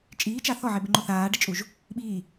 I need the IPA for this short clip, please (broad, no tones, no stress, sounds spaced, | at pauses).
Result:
t͡ʃʼ iː t͡ʃ a θ ɔ ʕ e b ɪ ŋ͡ǃ o θ aː ɖ ɪ t͡ʃʼ u ʒ | ɓ iː